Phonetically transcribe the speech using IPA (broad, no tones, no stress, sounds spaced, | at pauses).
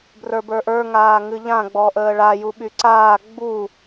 b r ə˞ b ə˞ ʔ ə˞ ŋ aː ŋ ɨ ʎ ã ɡ͡b ɔ ʔ əː ɭ a j u ɓ y ǀ aː ɡ͡b u